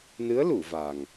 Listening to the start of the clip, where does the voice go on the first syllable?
rising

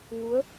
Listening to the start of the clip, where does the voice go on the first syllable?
rising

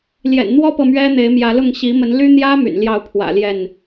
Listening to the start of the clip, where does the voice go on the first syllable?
low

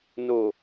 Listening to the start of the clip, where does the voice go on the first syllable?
low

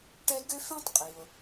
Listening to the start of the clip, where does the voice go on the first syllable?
high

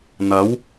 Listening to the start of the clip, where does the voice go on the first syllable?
rising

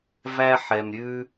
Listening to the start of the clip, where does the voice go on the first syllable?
high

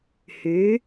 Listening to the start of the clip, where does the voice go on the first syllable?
rising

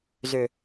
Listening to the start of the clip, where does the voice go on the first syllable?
low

